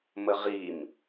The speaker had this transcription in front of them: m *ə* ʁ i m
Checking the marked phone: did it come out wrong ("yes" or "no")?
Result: no